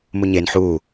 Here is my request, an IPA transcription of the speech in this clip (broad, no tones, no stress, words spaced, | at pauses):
muɲen ħu